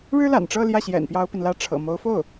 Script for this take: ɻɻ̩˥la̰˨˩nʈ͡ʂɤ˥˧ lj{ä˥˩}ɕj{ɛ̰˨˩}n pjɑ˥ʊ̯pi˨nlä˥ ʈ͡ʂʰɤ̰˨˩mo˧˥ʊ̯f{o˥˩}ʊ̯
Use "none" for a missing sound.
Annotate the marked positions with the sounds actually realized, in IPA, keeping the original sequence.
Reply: ä˥˩, ɛ̰˨˩, o˥˩

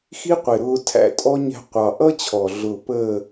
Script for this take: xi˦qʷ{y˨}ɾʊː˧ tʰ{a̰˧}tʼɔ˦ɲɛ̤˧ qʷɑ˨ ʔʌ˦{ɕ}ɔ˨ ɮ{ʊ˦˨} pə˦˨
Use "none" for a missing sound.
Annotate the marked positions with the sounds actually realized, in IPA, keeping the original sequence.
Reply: ɪ˨, æ̰˧, t͡ɕʰ, ʊ˦˨

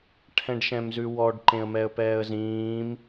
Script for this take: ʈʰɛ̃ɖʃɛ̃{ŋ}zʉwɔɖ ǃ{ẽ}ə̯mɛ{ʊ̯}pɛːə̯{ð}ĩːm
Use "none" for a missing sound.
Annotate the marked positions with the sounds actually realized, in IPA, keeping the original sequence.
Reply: m, ẽ, ə̯, z

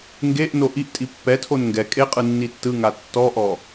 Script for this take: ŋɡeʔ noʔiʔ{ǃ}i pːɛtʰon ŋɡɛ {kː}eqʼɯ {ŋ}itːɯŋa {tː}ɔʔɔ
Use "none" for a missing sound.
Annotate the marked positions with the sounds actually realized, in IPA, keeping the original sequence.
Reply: tʼ, kʼ, nː, tː

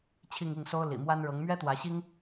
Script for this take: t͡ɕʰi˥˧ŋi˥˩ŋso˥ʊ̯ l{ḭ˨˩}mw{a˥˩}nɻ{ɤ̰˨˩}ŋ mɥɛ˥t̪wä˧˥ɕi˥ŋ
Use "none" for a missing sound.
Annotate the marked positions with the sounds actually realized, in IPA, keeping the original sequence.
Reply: ḭ˨˩, a˥, ɤ˧˥

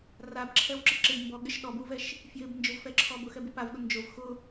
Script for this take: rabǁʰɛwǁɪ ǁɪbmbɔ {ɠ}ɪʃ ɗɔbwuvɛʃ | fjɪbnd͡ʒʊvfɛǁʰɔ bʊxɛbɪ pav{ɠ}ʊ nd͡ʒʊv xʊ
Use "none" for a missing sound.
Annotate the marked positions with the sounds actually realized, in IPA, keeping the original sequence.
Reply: ɠ, ɠ

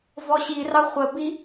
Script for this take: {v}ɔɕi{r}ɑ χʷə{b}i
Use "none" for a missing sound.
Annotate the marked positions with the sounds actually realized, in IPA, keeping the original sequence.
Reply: v, r, b

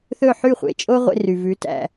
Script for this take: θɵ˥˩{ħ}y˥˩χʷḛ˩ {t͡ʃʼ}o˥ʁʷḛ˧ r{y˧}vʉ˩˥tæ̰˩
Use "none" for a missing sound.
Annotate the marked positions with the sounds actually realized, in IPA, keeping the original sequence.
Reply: ħ, t͡ʃʼ, y˩

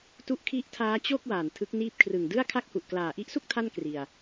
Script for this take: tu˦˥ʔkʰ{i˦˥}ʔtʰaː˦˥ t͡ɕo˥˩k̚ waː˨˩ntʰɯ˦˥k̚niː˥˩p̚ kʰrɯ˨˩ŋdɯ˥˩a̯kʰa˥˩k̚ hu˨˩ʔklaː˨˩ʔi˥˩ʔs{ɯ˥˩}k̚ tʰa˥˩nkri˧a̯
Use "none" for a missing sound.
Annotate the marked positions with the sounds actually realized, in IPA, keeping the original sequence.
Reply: i˦˥, u˥˩

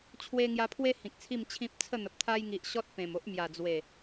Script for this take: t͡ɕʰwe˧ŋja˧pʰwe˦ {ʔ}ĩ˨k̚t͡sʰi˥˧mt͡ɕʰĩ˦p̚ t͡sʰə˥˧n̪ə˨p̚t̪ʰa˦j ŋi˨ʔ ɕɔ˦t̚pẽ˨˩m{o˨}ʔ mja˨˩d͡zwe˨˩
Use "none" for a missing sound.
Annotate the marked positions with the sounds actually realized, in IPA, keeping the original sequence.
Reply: h, o˦

